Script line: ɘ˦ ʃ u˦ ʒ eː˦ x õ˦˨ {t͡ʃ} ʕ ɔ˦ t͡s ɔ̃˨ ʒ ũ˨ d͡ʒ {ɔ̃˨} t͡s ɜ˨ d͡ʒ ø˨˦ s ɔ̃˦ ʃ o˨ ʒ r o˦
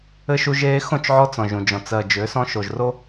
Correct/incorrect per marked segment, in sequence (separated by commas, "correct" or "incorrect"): correct, correct